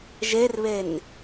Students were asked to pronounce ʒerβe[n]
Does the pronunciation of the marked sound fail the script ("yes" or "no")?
no